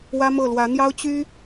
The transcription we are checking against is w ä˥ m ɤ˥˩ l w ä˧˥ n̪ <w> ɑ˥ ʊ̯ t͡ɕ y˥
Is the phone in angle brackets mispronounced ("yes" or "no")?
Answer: yes